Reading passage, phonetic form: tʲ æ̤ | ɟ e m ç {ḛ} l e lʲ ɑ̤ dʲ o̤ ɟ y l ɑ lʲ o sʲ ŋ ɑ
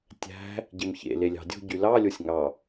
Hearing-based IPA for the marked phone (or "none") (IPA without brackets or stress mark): ḛ